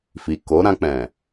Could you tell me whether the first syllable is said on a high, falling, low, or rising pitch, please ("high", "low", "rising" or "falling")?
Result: low